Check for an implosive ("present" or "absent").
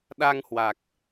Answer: present